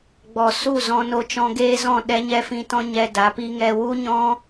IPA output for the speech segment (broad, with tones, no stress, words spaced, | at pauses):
ɡ͡bɔ˨ su˦˨zɔ̃˧ no˧t͡ʃɔ̃˧ɡeː˦zɔ̃˦˨ ɗɛ˦ɲɛ˦fĩ˧tɔ̃˦ ɲɛ˧ da˨˦pi˦ŋɛ˧ wu˦ɲɔ̃˦